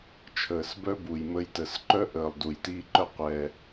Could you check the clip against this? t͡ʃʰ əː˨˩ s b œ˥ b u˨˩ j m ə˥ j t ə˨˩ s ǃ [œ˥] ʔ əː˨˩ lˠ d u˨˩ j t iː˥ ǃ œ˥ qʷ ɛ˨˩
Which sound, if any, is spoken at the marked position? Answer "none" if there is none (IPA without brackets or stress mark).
œ˥